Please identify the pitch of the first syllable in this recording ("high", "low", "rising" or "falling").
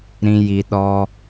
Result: low